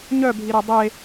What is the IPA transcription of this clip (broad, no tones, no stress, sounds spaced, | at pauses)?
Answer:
ɲ œ bʱ i ɾ e dˤ e